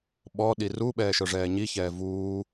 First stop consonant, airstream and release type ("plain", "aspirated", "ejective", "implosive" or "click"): implosive